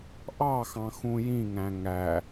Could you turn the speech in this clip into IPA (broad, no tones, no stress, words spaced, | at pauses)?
ʔɑxɑ̃ xũjĩŋæ̃ ŋæ